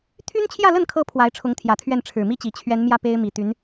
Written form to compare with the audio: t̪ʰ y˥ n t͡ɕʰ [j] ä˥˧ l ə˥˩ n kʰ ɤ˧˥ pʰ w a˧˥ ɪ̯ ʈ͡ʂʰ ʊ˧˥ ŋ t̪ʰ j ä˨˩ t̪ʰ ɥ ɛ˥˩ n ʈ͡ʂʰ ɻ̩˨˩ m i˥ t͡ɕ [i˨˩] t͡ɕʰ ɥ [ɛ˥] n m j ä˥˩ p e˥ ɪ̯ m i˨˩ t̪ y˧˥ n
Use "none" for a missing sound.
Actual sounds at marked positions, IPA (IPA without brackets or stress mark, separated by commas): j, i˨˩, ɛ˧˥